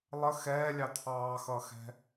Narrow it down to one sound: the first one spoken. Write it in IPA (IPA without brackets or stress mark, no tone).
lˠ